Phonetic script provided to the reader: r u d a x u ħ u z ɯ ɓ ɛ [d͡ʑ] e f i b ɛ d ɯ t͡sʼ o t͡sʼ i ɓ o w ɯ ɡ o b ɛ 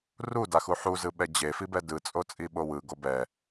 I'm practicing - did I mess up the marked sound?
no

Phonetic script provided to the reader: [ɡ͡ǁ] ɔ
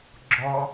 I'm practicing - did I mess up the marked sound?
no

